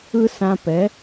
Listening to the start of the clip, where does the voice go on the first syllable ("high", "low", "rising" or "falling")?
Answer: high